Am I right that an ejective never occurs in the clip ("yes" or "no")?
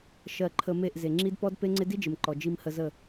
yes